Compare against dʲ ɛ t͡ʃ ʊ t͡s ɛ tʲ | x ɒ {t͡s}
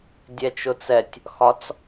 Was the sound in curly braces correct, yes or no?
yes